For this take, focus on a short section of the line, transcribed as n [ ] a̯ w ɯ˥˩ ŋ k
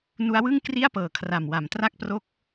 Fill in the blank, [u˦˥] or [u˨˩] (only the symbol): u˦˥